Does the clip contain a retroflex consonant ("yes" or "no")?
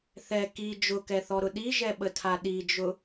no